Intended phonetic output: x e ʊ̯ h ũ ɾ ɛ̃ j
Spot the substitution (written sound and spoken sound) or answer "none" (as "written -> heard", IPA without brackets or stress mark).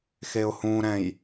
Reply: none